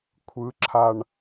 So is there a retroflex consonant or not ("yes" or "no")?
yes